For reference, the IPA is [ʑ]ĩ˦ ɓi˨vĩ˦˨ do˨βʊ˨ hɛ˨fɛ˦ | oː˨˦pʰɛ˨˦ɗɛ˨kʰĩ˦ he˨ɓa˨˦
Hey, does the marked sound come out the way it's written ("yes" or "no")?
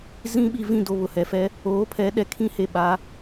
no